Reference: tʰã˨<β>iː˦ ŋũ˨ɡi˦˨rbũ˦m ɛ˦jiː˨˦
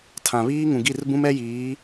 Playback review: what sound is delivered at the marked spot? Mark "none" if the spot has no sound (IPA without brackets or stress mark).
β